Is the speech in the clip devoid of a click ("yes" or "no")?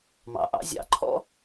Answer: no